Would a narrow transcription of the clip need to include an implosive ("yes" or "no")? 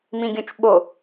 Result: yes